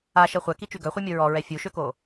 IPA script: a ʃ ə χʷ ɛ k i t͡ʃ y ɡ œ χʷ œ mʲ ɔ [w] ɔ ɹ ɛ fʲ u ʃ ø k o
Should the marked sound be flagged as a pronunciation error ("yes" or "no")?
yes